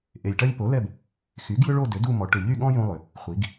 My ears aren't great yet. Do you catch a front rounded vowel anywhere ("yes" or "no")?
yes